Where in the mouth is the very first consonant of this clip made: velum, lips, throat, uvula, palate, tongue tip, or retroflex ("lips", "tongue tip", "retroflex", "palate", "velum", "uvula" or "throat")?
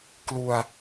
velum